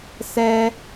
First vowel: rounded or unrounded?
unrounded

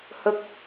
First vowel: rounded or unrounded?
unrounded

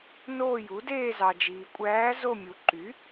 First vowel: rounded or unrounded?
rounded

